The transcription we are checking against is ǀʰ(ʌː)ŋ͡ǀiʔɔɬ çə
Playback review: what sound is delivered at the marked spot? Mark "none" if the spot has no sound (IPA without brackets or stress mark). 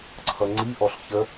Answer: ʌ